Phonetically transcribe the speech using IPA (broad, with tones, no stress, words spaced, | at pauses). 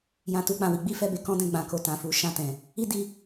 jã˧tu˧k͡pã˨wi˨˦ ɡ͡bi˦fɛ˦˨be˧kɔ̃˦ dɛ̃˦˨ ɡ͡bã˨ko˨tã˨ fu˨˦ʃã˦˨tɛ̃˨ | i˦di˧